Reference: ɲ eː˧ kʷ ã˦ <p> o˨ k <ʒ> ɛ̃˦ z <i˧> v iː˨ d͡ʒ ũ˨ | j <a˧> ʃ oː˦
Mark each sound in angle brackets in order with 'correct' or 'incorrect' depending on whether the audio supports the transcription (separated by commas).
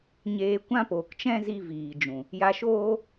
correct, incorrect, correct, correct